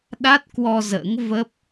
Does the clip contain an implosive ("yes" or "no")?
yes